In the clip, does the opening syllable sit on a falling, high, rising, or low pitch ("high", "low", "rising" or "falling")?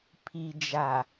low